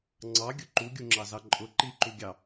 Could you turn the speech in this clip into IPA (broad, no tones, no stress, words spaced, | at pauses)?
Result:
ŋ͡ǀɑɡʲʊ ǃuɡʲuŋ͡ǁɑzɑ ǃʼʊ ǃiǃuɡʲɑ